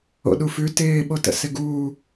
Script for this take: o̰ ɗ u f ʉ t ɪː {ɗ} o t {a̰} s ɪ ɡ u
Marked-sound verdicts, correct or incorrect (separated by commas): incorrect, incorrect